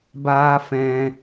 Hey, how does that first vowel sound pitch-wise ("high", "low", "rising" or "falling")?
high